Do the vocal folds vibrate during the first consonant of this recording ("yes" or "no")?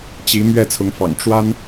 no